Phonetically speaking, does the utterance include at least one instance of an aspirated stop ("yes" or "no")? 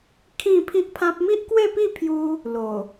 yes